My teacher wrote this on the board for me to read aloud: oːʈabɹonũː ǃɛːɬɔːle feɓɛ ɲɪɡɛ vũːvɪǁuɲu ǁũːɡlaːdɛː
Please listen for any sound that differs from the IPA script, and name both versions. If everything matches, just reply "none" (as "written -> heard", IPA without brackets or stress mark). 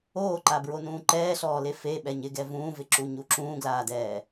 ʈ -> ǃ